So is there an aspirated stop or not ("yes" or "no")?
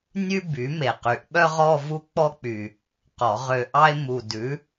no